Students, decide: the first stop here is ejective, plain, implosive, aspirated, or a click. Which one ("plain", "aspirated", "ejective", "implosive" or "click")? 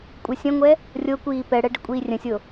ejective